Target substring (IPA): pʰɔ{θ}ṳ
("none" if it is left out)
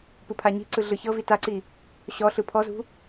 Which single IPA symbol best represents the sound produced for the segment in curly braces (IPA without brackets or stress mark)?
z